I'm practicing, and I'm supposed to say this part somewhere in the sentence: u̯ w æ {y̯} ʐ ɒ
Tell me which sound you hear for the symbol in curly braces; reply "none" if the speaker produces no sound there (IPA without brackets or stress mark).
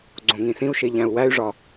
y̯